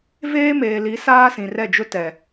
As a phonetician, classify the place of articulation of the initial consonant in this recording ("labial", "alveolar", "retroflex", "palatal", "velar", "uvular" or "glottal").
labial